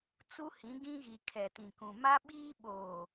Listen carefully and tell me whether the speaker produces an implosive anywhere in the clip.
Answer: yes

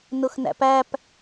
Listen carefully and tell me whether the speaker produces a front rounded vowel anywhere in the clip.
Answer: no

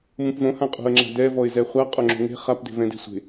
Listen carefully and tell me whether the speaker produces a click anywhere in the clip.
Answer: yes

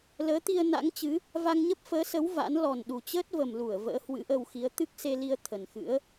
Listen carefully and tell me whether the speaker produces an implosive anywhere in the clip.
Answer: yes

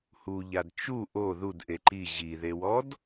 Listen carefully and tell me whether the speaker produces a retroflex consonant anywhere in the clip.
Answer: no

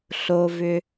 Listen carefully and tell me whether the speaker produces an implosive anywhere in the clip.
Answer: no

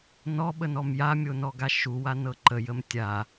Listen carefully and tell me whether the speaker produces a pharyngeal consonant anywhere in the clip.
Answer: no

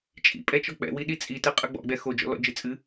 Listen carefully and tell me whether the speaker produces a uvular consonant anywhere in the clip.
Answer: yes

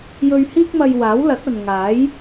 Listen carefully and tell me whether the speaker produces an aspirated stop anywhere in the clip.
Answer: no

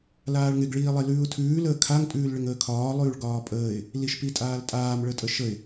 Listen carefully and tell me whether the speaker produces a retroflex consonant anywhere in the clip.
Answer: yes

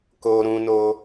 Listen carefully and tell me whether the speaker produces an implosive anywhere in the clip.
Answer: no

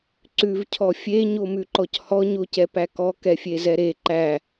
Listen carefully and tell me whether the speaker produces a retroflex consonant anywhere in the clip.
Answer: no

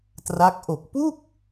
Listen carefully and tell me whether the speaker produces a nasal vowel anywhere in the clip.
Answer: no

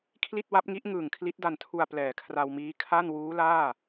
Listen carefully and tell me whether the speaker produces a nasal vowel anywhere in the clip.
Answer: no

